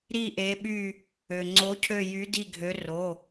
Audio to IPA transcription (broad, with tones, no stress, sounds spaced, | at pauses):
ɾ i˦˨ ʔ e˨˦ ɓ y˦˨ | ø˩ ŋ͡ǀ o˨˦ cʰ ø˦˨ j y˨˦ d i˦˨ ɡʱ ø˨˦ r o˩˧˩